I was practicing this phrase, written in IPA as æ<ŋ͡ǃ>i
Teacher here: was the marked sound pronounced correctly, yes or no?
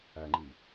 yes